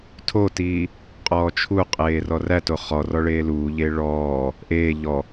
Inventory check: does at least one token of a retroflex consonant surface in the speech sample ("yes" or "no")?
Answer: yes